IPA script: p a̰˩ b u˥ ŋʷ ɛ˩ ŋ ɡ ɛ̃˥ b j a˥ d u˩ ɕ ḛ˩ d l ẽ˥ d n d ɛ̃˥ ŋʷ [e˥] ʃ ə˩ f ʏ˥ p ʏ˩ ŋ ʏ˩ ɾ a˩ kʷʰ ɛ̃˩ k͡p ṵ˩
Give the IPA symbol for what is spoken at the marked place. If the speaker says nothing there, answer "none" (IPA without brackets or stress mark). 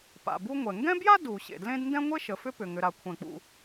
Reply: e˥